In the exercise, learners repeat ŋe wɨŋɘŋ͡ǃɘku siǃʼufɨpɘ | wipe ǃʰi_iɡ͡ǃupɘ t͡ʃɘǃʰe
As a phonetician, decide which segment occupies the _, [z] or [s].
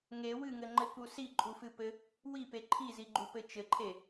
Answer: z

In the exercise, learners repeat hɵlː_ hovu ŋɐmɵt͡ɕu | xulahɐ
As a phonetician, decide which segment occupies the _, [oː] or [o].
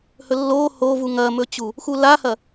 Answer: oː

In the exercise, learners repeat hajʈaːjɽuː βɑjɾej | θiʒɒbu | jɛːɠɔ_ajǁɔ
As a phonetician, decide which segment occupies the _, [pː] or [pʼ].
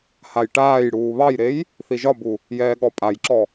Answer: pʼ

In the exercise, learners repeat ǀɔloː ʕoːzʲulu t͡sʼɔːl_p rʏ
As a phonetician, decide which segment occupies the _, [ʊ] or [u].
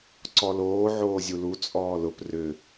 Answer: ʊ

